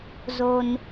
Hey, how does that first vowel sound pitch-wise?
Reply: high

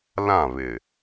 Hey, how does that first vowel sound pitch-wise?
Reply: falling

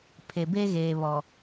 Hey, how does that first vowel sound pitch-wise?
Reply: low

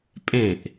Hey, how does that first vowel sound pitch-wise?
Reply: falling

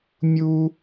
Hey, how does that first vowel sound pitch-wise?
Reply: high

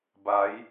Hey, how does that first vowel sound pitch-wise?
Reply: rising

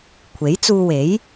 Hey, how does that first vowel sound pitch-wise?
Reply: rising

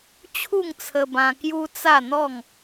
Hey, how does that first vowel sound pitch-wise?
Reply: falling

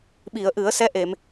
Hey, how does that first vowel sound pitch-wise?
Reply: low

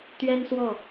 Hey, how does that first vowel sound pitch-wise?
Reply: high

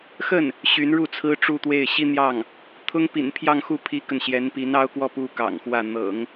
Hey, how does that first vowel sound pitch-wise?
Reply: falling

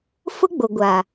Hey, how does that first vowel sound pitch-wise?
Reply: high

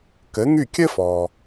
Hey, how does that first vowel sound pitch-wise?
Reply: rising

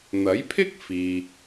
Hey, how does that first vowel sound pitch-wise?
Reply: rising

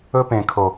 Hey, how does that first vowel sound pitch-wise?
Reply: high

